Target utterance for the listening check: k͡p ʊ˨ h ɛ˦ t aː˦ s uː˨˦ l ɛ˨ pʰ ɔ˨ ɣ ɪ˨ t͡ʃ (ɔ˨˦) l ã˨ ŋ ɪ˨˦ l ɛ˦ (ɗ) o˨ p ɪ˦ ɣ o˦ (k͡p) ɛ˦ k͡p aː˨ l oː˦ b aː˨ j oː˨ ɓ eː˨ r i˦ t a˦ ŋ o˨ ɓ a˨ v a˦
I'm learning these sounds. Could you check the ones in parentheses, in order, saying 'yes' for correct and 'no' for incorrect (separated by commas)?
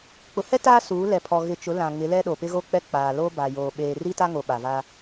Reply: no, yes, yes